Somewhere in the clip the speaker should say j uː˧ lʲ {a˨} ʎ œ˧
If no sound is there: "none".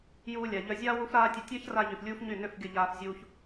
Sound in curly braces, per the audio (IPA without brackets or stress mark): a˨